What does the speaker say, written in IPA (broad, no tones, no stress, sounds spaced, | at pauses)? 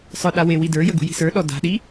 sˤ ə˞ ɗ a w e w i d ə˞ j ə ɡ ṳ j i̤ s ə˞ ɗ ɔ d a̤ ɗ i